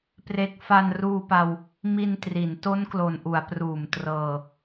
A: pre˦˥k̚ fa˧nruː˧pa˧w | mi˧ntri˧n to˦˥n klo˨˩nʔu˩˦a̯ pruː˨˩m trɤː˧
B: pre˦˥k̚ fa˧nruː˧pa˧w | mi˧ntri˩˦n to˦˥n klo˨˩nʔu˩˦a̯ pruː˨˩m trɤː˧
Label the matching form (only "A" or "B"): B